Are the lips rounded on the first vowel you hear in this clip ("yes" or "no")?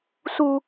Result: yes